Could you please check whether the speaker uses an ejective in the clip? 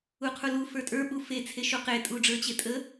yes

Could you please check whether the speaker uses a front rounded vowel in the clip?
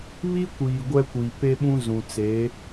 no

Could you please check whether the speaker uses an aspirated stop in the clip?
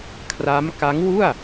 yes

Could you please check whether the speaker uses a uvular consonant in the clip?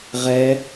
yes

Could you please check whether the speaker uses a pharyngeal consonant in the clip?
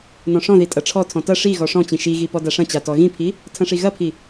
no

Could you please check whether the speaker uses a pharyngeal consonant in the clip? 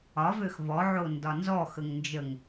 yes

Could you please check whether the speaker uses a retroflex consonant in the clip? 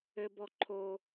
no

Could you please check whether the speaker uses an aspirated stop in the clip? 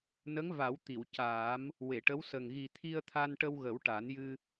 yes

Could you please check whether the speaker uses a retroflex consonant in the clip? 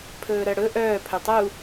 yes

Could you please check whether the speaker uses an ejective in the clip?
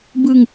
no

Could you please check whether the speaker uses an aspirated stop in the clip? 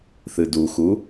no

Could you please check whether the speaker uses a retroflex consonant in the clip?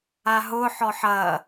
no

